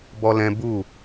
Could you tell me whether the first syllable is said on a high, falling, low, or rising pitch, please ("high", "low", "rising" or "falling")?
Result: high